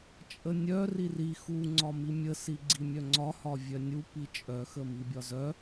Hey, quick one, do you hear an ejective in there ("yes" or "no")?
yes